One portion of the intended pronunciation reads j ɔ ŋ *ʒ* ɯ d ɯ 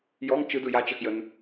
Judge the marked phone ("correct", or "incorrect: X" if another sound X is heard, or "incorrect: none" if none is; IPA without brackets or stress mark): incorrect: t͡ʃ